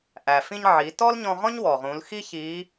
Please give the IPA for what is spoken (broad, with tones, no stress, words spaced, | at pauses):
ʔæ˩fĩ˧ɲʕiː˩˧ tɔ˥lɲɔ̃˧ʁɔ̃˥ɲ wɔ˩ʁũ˩˧lxi˥ çiː˧˥